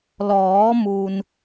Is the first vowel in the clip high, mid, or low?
mid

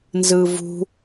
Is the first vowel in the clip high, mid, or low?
high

